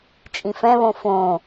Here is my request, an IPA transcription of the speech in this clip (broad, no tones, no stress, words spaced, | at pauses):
t͡ʃʼĩfɛ̃βõ fõ